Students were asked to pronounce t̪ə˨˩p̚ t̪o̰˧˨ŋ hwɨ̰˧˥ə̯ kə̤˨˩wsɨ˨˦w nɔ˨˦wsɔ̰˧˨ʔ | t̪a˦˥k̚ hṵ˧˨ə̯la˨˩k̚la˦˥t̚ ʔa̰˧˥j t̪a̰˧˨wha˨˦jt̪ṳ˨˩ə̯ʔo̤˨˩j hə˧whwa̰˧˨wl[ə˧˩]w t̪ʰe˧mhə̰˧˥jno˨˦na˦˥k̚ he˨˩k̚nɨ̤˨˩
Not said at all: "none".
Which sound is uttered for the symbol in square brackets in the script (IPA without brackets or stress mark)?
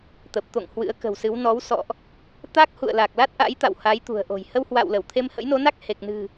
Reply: ə˧˩